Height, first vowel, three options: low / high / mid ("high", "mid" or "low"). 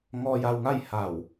mid